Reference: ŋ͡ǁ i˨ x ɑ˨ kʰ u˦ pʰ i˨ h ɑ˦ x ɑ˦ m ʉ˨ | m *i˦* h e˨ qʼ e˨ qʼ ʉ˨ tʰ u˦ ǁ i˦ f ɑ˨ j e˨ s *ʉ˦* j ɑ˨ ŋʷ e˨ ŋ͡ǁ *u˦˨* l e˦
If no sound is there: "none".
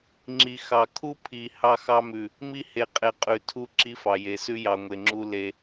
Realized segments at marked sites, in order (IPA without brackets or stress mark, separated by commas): i˦, ʉ˦, u˦